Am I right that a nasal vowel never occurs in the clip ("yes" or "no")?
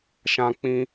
no